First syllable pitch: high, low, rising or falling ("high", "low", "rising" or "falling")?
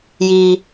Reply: high